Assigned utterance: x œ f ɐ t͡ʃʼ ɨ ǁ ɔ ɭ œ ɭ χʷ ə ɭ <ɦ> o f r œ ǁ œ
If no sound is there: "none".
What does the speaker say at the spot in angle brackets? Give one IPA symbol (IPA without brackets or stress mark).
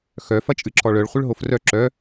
ɦ